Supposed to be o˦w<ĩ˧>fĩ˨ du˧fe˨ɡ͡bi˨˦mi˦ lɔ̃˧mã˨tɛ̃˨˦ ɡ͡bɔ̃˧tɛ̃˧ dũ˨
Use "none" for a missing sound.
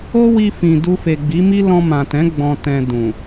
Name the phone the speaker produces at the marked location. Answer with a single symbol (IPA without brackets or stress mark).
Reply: i˧